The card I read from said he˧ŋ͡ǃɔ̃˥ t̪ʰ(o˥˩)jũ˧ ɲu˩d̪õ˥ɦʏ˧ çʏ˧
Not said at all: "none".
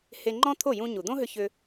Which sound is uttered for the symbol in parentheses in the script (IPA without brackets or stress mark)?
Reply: o˥˩